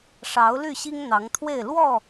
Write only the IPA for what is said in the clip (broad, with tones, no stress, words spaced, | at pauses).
ʂɑ˨˦ʊ̯ly˥˨ ɕi˦ŋn̪ɑ˨˦ŋt̪ʰwe˥˨ɪ̯ lwɔ˥˨